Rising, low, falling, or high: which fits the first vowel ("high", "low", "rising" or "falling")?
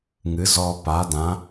rising